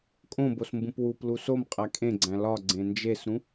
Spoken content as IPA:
kʼõbos mbũpwuplu som qʼækʼẽɡ͡ǀæ̃ lɒ ɡ͡ǀẽnd͡ʒesɾũ

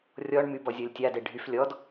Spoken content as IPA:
rʲɔɳmy bɔzʲɔlʲtʲade ɖʱyf lʲɔd

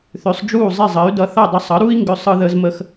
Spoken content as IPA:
θʏ˩˥sˤd͡ʒuː˥˩zˤe˥˩ zˤɜ˩˥y̯dʌ˧ θʌ˥˩dˤʏ˧ sˤʌ˩˥ɾu˥i̯ŋɡʏ˧ sˤɯ˧ ðəː˧zmə˧x

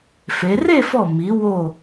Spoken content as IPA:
fe˩˧ re˥˧fɔ˧˩mi˩˧ wo˧˩

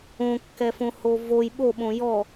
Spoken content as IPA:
õkːɛfõho voj ɓoɓõ jɔ

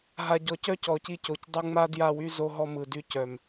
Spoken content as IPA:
ɦa˨ɟɔ˨cœ˦ cɔ˨ci˦co˨c dˤɯ˦ ŋ͡ma˦dja˦˨wy˦ zo˦ɦɔ˦mɯ˨ dy˦cœ˨m

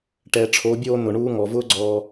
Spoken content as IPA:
ʈɛː˧ʈ͡ʂʰoː˧˥bʲoː˥ nʊ˧ɳuː˥ ŋɔ˩˧vʊː˥ ɡ͡ǀɔː˥

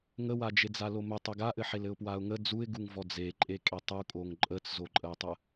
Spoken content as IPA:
ŋəwad͡ʒed͡za lomɘ tˤeɡaʔɘ ħelɘʊ̯pwaʊ̯ŋə d͡zuɪ̯ɡuŋvɔ d͡zeǃʼe kʼetˤukʼoŋ ǃʼət͡szoǃʼəʊ̯tˤə

